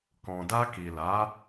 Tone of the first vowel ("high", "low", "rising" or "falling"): low